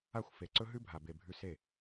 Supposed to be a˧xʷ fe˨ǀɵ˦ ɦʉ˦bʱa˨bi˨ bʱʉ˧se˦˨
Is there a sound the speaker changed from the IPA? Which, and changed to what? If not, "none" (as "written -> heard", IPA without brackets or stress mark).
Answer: i˨ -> e˨